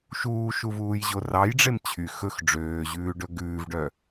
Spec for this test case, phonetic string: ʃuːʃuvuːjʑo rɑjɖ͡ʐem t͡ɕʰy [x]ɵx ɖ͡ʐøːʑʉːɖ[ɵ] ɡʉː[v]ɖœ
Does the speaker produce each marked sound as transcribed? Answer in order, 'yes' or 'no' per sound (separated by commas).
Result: yes, yes, yes